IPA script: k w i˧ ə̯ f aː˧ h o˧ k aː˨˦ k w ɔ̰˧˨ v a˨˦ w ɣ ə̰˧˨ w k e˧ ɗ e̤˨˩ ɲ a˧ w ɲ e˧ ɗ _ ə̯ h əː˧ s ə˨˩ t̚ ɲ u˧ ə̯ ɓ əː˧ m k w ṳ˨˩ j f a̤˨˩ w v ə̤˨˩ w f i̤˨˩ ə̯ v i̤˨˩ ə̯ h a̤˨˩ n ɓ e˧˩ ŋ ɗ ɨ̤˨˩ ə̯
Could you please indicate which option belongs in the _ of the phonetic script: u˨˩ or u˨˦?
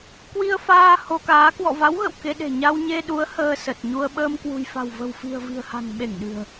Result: u˨˦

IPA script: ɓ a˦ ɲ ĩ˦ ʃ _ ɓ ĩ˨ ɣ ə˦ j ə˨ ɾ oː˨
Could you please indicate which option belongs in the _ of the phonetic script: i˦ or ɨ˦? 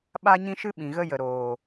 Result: ɨ˦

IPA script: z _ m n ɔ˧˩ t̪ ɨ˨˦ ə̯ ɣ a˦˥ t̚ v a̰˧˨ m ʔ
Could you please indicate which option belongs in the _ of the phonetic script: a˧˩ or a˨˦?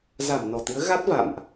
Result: a˧˩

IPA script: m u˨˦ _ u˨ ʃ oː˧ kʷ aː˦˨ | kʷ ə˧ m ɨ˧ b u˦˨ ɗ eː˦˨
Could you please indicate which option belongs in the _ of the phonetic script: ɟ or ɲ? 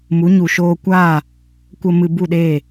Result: ɲ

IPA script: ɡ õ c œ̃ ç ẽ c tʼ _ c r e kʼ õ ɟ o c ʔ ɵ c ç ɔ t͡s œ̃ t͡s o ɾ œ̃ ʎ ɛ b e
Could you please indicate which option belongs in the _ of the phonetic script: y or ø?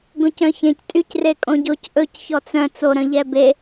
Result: y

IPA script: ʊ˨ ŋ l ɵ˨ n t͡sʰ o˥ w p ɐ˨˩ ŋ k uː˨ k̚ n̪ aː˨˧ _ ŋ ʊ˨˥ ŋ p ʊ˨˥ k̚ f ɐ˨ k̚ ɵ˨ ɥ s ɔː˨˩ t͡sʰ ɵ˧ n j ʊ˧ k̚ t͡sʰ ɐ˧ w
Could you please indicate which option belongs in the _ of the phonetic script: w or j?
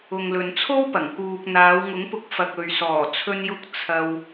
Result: w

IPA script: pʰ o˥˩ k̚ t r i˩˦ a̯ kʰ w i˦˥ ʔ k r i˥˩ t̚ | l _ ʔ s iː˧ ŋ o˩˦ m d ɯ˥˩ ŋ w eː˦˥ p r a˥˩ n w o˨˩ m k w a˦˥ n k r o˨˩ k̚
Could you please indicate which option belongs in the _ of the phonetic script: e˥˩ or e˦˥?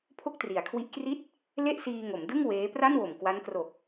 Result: e˥˩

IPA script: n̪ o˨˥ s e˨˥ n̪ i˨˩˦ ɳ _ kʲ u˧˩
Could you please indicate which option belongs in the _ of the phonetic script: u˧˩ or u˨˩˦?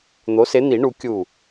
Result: u˨˩˦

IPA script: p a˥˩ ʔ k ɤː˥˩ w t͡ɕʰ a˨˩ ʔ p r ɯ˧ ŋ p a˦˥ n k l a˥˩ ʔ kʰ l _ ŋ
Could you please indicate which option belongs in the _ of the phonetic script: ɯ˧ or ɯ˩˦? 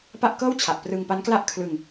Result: ɯ˧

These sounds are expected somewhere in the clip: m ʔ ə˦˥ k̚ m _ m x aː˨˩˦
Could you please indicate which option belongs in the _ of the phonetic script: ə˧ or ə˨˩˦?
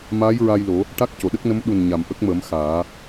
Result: ə˨˩˦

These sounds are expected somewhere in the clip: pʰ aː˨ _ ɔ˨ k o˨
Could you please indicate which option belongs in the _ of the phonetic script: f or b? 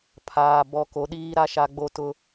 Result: b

